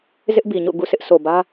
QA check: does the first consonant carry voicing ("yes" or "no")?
yes